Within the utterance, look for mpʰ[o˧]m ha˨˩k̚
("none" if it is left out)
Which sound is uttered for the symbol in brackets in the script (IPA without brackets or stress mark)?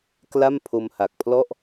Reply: o˧